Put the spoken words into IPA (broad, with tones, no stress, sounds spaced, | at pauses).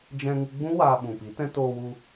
d͡ʒ ɛ̃˧ ŋ ɨ˧ ɡ͡b ũ˦ w aː˧ ɓ ũ˨ p i˨˦ t ɛ̃˦ t oː˧ w u˧